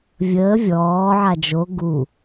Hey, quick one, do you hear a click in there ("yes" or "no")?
no